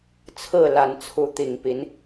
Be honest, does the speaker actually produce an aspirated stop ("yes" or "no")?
yes